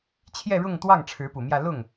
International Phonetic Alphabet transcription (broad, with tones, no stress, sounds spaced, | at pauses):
t͡ɕʰ j ɛ˥˧ ɻ ʊ˥˧ ŋ t̪ w ɑ˥˩ ŋ ʈ͡ʂʰ ɻ̩˧˥ p u˨˩ m j ä˥˧ l ʊ˥˩ ŋ